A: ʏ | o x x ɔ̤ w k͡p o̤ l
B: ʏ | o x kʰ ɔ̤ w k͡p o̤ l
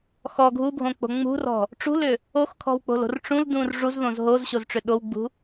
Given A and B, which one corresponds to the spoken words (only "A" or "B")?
B